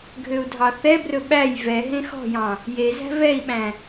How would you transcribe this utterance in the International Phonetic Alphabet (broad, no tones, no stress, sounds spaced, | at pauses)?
ɡʱ ø u̯ dʱ ɑ θ ɛ b r ɵ ɓ æ j v ɛ ɦ ẽ x ɔ̤ j ɑ̃ | j e z æ̤ v ɛ i̯ ɓ æ̃